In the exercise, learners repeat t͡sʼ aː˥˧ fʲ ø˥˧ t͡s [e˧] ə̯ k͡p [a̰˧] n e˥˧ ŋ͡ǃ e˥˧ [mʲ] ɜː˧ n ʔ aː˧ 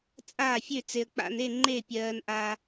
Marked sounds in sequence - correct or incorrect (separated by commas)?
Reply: correct, correct, incorrect